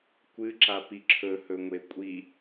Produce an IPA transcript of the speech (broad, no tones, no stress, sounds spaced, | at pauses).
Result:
kʷ ɨ ǁ a p i ǁʰ ɵ h ɵ ŋʷ e kʷʼ i